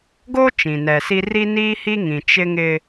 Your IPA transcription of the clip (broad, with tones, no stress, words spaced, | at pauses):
ɡoː˦ t͡ʃĩ˨nɛ˨ si˦ ri˦ niː˦hi˦ŋĩ˨ t͡ʃɪ˦ŋɪ˦